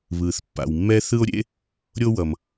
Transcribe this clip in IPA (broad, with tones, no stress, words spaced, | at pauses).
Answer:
βɯː˩θpːa̰˩wmːɛ˥ θɯ˥o̯ɾʲḛ˥ | ɾʲo˥wʌ˩m